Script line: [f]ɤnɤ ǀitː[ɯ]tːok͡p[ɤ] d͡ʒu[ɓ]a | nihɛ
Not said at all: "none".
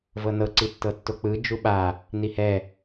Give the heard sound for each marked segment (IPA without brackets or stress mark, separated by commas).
v, ɤ, ɯ, ɓ